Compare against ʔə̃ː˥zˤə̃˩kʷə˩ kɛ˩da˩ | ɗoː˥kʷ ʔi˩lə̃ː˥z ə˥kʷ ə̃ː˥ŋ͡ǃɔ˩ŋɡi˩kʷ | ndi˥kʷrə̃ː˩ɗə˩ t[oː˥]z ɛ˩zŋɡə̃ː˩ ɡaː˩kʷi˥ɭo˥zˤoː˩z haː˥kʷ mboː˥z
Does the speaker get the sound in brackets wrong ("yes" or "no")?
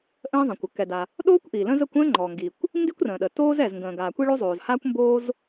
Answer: no